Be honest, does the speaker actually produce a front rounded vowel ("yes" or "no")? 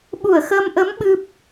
no